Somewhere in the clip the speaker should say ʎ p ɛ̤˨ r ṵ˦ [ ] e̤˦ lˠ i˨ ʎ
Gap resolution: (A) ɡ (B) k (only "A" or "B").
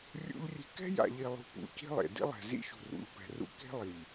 B